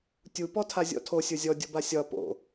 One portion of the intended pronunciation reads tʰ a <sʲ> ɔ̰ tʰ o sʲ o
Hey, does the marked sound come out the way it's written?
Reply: no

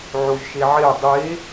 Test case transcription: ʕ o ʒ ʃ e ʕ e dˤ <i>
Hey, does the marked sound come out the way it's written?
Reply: no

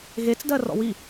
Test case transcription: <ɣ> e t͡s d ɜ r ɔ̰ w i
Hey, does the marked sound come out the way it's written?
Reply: yes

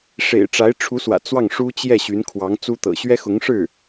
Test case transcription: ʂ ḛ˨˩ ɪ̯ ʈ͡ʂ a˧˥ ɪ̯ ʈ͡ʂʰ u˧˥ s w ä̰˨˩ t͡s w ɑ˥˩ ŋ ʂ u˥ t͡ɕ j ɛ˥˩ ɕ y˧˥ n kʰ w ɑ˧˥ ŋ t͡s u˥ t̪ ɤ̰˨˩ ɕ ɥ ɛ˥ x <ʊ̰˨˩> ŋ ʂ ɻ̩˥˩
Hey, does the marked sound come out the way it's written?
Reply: no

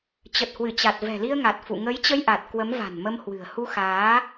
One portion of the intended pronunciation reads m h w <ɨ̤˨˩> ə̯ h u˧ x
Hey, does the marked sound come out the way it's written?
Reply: yes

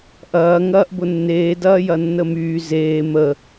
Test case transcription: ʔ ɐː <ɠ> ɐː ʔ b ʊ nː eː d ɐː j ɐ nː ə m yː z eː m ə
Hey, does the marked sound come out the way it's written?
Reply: no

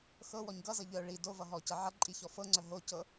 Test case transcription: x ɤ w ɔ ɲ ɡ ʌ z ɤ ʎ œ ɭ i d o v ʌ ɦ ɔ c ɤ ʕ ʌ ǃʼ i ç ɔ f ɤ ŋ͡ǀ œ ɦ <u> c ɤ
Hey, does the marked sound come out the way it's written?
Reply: no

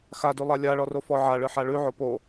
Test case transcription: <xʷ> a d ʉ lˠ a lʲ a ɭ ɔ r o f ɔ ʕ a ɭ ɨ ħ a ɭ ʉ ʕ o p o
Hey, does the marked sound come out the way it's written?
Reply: no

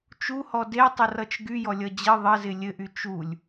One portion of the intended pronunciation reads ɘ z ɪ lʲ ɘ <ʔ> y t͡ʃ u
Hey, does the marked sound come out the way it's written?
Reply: yes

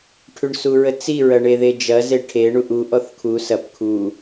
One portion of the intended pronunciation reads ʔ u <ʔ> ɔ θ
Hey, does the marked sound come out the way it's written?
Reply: yes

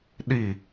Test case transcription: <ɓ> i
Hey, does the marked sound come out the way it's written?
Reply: no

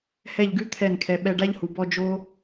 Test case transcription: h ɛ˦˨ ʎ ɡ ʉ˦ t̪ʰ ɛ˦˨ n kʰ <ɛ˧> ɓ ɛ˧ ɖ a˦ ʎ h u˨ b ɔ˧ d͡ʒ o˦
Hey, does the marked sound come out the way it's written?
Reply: yes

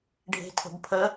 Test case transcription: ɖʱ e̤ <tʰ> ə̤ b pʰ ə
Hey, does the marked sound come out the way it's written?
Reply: yes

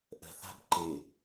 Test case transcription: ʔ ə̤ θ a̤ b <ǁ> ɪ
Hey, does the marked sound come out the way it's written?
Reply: no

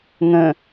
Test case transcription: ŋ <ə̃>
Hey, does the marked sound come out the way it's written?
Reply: yes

